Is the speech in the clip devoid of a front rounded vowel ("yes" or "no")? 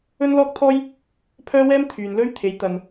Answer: no